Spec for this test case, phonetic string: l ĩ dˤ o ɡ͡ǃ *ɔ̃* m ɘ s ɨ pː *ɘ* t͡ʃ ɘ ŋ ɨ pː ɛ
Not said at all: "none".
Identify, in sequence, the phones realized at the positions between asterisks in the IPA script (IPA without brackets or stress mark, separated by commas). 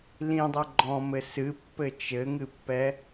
ɔ̃, ɘ